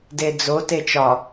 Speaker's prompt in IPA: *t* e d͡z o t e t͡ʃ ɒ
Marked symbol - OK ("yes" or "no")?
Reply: no